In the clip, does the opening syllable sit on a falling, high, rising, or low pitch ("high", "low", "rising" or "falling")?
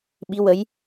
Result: rising